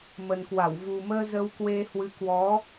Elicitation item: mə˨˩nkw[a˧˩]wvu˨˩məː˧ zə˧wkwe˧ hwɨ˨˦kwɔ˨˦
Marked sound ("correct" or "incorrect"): correct